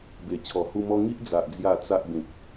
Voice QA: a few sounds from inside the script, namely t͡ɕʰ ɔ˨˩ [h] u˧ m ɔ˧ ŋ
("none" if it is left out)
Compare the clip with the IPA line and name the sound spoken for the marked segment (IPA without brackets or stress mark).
h